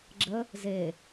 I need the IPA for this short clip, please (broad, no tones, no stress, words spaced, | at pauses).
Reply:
ɡ͡ǁə | ze